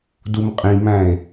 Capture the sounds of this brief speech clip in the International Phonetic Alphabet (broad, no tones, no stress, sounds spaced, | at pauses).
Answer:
d u m qʼ ĩ m æ̃ e̯